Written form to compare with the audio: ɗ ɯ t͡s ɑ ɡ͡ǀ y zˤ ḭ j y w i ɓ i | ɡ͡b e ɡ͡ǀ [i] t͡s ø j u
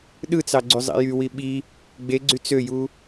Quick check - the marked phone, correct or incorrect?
incorrect